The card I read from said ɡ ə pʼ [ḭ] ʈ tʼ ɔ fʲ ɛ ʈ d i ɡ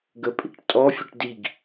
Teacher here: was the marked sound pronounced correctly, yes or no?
yes